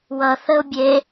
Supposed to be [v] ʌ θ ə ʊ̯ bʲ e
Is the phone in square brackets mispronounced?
yes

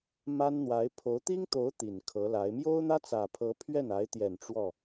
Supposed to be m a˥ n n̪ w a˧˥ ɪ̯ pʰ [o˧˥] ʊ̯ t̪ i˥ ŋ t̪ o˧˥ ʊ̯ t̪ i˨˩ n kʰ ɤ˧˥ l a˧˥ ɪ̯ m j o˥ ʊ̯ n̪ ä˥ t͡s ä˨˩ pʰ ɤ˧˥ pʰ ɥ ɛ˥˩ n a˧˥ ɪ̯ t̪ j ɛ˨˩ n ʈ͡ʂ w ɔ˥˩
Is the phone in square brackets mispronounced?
no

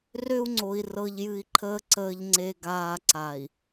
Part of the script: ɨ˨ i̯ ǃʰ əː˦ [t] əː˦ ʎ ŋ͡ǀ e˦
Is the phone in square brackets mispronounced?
yes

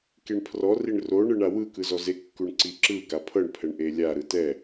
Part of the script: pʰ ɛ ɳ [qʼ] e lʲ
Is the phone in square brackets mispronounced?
yes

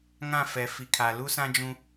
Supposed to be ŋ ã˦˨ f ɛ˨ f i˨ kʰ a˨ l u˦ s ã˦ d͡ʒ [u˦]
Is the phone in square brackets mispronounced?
yes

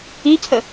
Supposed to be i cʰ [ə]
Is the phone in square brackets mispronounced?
no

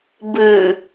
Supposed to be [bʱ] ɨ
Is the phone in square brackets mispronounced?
yes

